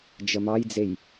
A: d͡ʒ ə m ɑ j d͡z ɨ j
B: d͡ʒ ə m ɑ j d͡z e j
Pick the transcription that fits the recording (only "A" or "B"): B